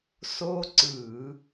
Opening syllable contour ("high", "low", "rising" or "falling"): high